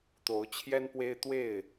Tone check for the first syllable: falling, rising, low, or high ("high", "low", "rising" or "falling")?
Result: rising